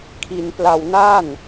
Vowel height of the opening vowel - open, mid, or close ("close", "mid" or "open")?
close